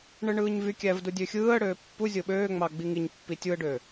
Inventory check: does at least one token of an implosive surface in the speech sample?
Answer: yes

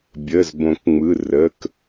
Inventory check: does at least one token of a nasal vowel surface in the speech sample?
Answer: yes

